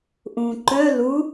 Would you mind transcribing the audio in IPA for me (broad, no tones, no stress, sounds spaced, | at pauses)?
ʔ ũ ǃ œ l u